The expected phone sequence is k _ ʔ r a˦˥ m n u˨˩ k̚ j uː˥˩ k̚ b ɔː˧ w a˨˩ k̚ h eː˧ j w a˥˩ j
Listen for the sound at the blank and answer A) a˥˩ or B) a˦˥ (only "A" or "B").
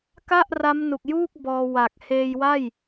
A